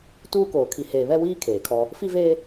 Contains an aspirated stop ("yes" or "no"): yes